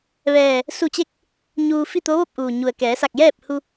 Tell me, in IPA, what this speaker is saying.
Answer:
ʋɛː˧˩ | su˧˩t͡ɕe˧˥k̚ | ɲuː˧ fi˥˨t̪o˧˥ʋo˥˨p̚ʔuː˩ ɲu˩ə̯kɛː˩˧sa˧˩k̚ jɛː˥˨p̚hu˧

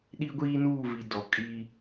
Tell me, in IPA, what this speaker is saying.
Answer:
ɗi˦ɡʷiː˦nuː˦˨vi˨ dɔ˨kʼi˦

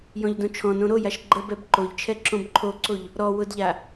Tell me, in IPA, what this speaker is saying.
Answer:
jɔ̃ʎdõt͡ʃʰɔ̃nõ ɾojaʃ ɡ͡ǃəbɛb ǃoʎt͡ʃʰɛ ǁõbǃʰoǀoʎ | ɾɔ wʊdʎa

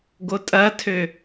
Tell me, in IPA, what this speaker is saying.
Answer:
ɡotʼɐtʰø

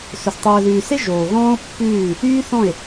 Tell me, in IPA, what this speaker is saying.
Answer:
sɵ˨s tˤɵː˨ðʉː˨se˦ ʒoː˨ɣɔ̃ː˦o̯ pːʉː˦˨ | yː˦ θɔ̃˦˨e̯

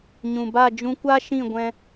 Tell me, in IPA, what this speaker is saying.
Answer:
ɲũ˨ba˦˨ d͡ʒũ˧kʷa˦ʃĩ˦˨ ɡʷɛ̃˦

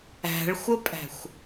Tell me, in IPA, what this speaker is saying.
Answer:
æ̤ɭxʷəpʼæ̤xʷ

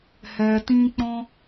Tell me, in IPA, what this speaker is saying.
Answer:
hɛ˧tĩ˦k͡pɔ̃˦

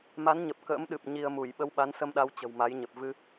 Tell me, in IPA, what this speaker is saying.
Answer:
ma˨˦nɲə˨˩p̚ kə̰ː˧˥mɗɨ˨˩p̚ ɲi˧ə̯mu˧˩j ɓə˧wɓa˨˦nsə˧mɗa˨˦w t͡ɕə̤˨˩wma˨˦jɲə˨˩p̚ vɨ˧

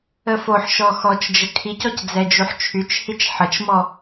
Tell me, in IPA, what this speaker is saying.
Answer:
əfoħʃɔ xɔt͡ʃd͡ʒə kʰicɔc d͡zɛd͡ʒuħt͡ʃʰyt͡ʃhit͡ʃ ħət͡ʃmɔ

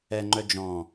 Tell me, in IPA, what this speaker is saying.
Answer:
ɛŋ͡ǃœ d͡ʒɔ̃

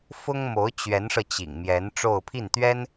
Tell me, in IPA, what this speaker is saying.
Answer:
fʊ˥ŋmo˧˥ʊ̯ t͡ɕɥɛ˧˥nʂɤ˧t͡ɕḭ˨˩ŋmjɛ˧˥n ʈ͡ʂo˥˧ʊ̯pʰi˥˩nt̪ɥɛ˥n

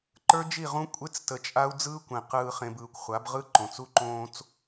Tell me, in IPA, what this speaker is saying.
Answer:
ǃə˞˦d͡ʒi˦˨ʁũ˦ kʷʼe˦t͡stə˨ t͡ʃʼa˦u̯d͡zɯː˦kʷẽ˨ qɯː˨χẽ˨b ɯː˨kʷχʷa˨˦bʁɯ˦ ǃõ˨t͡su˦ǃõː˦t͡s

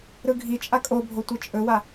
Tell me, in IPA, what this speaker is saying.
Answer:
ɾɯɡʱit͡ʃʼa kʼobʱo tʷɯt͡ʃʼɵwa

